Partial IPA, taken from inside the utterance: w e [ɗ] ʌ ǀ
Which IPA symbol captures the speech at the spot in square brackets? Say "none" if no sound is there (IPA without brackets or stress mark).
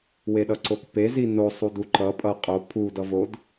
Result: ɗ